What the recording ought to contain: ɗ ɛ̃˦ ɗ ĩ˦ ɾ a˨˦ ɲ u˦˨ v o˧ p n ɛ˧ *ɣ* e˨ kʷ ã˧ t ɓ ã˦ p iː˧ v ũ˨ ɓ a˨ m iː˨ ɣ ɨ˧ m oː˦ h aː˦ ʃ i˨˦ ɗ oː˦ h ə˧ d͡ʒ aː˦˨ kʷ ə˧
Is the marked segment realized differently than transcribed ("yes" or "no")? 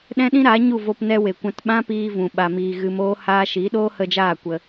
yes